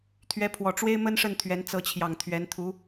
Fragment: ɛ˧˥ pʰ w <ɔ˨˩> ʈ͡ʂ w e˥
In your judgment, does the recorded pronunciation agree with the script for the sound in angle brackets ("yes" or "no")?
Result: yes